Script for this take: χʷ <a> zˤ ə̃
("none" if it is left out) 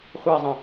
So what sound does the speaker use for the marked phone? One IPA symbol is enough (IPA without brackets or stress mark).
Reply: a